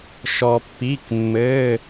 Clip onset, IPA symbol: ʃ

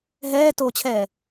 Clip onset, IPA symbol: ɦ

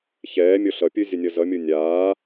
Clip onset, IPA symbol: ç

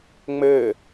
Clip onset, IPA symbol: ŋ͡m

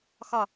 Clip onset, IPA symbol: x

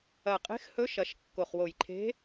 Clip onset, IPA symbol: ɐ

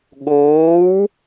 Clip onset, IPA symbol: ɠ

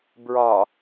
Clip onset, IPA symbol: b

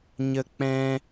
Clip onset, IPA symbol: ɲ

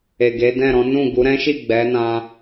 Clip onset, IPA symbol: e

